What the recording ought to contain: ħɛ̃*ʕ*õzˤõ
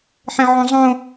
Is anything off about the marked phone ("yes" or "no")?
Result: no